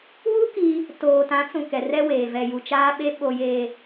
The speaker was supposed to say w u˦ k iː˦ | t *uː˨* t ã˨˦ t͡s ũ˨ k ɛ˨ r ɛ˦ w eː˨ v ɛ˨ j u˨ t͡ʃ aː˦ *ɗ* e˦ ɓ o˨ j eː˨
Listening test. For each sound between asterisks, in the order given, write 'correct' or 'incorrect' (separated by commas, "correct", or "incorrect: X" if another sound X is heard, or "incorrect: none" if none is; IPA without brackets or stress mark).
incorrect: oː˨, incorrect: ɓ